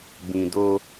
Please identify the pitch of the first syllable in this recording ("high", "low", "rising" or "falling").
low